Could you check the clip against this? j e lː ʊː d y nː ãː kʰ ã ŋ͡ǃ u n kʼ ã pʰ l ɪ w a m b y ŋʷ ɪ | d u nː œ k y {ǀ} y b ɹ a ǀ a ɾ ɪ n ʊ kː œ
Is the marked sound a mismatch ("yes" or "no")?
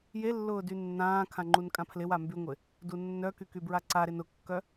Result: yes